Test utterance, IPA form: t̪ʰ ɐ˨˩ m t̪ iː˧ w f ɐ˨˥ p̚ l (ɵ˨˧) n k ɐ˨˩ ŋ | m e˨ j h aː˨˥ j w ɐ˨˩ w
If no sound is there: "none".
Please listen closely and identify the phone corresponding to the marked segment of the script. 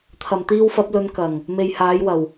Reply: ɵ˨˧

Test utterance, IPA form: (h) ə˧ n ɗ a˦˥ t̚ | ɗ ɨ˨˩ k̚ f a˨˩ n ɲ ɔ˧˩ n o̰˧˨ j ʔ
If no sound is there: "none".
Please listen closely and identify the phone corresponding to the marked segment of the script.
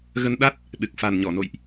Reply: ɣ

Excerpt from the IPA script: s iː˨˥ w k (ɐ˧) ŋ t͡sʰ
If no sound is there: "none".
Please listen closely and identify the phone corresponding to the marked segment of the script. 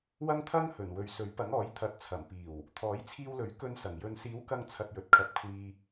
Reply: ɐ˧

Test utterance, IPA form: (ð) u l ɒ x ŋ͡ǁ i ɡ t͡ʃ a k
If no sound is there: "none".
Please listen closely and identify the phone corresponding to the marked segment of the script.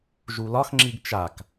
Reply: ʒ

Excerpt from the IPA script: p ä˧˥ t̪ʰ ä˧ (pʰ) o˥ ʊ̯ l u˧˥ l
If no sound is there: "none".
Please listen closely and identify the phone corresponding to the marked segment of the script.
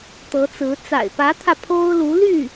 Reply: pʰ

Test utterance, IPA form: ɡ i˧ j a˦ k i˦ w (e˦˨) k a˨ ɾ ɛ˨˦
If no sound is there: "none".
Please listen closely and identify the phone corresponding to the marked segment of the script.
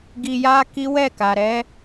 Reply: ɛ˦˨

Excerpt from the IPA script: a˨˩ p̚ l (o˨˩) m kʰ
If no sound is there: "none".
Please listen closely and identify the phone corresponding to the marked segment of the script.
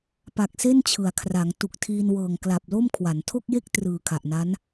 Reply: o˥˩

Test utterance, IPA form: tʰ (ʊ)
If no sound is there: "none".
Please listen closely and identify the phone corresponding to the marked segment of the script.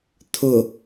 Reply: ʊ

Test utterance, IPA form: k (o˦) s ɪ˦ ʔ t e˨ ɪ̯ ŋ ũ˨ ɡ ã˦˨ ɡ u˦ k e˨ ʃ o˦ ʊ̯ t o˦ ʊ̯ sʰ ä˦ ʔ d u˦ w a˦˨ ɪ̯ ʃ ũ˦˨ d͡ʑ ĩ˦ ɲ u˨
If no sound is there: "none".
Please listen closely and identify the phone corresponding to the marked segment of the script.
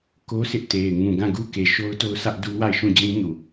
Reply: o˦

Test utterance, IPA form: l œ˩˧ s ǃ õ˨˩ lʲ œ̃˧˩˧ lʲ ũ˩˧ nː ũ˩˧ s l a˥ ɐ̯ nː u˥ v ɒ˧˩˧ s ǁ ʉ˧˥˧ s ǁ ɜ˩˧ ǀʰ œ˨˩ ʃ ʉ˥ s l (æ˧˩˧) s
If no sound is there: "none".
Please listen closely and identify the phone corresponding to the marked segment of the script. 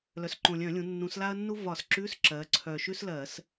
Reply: ɜ˧˩˧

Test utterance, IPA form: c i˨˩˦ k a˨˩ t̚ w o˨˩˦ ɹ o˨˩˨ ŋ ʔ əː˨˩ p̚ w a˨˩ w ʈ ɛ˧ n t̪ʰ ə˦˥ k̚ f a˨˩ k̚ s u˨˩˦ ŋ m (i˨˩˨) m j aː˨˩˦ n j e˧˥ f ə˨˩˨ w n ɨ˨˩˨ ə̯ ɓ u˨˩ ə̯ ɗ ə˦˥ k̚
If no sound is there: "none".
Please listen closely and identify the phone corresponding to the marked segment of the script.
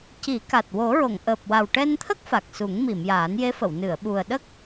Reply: i˨˩˨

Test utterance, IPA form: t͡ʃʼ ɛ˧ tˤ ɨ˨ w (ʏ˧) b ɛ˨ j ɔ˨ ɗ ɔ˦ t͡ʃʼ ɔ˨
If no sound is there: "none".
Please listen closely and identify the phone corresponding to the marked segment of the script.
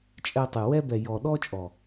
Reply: ɛ˧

